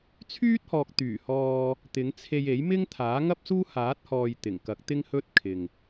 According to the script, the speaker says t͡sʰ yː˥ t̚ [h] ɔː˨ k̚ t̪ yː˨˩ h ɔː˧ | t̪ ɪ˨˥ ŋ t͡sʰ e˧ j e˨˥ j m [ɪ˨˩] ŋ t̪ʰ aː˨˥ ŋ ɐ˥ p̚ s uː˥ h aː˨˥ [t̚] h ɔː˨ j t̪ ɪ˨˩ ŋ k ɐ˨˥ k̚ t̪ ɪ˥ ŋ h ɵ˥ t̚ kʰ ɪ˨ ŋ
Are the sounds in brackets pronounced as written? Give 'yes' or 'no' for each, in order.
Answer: yes, no, yes

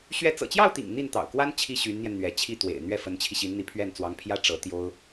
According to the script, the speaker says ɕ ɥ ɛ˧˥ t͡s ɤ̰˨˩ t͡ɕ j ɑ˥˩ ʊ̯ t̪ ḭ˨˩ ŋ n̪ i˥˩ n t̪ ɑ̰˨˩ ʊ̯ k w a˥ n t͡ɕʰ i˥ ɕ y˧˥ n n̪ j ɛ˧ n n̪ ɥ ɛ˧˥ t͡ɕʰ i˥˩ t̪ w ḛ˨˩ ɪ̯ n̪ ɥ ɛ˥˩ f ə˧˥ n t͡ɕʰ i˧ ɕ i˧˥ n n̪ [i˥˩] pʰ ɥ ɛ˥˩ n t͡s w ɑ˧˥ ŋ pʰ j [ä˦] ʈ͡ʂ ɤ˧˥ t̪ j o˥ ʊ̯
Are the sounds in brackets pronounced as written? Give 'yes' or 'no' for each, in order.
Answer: no, no

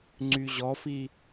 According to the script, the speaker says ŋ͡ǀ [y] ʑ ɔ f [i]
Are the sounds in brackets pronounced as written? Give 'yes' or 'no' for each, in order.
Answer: yes, yes

